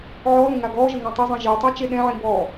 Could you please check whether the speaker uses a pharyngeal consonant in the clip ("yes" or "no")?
yes